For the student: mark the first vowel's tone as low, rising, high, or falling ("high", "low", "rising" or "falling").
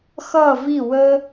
falling